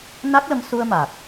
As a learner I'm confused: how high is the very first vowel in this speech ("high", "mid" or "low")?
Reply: low